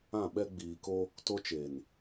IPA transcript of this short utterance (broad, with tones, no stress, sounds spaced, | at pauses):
ã˦˨ ɓ ɛ˦ ɡ͡b iː˨ k o˦ | t o˦ t͡ʃ e˨ n